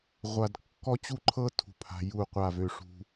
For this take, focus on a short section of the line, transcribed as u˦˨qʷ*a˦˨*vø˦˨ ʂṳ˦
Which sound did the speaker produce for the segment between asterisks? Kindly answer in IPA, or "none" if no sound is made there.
a˦˨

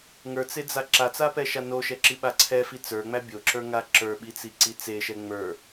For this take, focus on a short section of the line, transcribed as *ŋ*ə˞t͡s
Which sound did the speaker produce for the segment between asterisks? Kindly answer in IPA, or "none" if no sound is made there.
ŋ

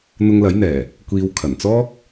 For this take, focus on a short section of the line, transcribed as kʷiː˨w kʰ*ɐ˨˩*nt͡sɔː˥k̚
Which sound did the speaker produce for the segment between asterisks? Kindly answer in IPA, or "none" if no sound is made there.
ɐ˨˩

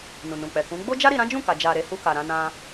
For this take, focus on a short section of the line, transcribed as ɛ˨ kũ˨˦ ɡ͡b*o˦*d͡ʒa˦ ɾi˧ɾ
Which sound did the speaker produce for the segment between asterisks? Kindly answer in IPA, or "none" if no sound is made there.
o˦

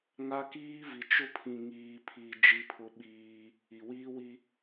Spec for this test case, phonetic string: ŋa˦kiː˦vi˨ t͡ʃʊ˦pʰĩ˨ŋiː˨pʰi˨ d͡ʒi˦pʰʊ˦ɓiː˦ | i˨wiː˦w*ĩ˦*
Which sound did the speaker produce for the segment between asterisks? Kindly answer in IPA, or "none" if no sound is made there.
i˦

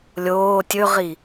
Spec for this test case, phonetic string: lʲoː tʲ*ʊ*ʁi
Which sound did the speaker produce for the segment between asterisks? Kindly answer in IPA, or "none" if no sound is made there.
ɵ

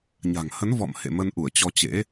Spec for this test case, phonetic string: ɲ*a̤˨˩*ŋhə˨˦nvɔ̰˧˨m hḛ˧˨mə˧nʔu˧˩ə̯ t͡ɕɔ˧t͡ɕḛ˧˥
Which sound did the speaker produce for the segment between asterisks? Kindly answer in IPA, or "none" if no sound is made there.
a̤˨˩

